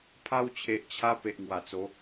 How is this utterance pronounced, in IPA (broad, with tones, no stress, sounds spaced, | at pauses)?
pʰ a˧ w t͡ɕʰ e˨ ʔ t͡ɕʰ a˧ p e˨ ʔ ŋ w a˨˩ t͡s o˨˦